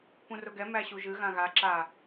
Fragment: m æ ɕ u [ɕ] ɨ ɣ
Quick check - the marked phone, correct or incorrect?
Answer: incorrect